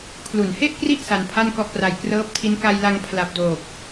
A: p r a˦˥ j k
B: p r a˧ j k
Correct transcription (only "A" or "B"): B